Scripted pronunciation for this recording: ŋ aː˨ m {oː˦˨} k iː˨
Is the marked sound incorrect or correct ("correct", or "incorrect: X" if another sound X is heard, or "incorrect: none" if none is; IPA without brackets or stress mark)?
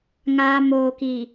incorrect: oː˨